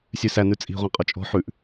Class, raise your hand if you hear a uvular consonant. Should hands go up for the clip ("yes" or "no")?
yes